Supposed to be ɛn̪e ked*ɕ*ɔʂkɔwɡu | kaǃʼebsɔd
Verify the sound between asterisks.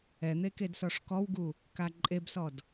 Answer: incorrect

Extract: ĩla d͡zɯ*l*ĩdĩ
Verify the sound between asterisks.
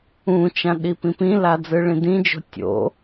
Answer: incorrect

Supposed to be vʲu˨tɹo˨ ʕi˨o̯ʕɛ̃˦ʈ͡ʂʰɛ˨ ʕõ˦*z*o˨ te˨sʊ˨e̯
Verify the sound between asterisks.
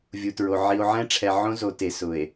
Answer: correct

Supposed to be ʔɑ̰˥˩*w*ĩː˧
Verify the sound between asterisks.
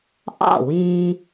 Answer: correct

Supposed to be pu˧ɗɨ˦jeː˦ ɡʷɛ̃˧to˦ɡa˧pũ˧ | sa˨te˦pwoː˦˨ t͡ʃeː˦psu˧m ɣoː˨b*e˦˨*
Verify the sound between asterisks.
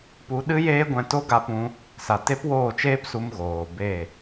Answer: correct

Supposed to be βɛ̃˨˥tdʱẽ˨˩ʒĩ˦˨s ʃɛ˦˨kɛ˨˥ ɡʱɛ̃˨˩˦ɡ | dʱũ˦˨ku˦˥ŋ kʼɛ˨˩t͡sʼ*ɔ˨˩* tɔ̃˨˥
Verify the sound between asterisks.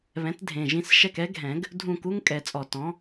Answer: correct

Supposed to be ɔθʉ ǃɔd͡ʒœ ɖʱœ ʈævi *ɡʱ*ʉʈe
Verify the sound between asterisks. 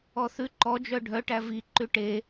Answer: incorrect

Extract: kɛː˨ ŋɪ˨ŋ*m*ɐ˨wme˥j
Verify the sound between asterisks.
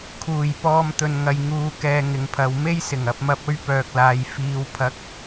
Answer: incorrect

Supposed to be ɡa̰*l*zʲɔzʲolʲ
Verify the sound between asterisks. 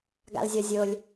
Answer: correct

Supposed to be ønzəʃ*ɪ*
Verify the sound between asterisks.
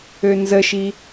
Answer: incorrect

